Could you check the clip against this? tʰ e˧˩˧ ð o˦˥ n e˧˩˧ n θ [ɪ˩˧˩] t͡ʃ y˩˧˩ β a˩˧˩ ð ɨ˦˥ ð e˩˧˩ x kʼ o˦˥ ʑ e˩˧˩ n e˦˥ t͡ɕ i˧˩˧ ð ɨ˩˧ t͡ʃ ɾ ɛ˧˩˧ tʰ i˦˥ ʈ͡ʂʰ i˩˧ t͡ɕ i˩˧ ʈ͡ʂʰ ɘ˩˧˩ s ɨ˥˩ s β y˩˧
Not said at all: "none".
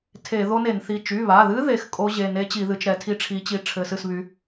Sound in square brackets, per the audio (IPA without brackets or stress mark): i˩˧˩